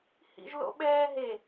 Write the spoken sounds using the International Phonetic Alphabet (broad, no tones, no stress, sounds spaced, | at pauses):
h ḭ ʒ l o̰ ɓ ɛː ɦ e